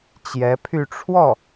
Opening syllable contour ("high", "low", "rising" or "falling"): rising